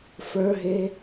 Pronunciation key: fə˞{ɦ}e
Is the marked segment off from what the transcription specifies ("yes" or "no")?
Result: no